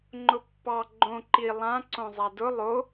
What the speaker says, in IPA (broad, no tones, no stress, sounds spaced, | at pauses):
ŋ͡ǃ ʊ pː ɑ ɡ͡ǃ õ ǃ i lˠ ã ǀ õ zˤ a d ʊ lˠ o